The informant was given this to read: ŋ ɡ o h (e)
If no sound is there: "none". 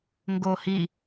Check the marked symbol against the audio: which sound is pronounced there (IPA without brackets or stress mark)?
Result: i